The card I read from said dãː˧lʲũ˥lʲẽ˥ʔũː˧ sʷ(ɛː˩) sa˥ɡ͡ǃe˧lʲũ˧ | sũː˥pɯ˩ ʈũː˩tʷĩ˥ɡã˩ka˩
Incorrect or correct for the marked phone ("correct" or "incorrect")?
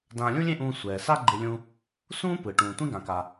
correct